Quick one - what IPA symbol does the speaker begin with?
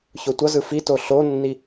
ç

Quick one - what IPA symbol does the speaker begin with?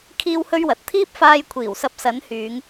kʰ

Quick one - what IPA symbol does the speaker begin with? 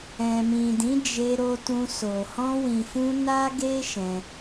ɛ̃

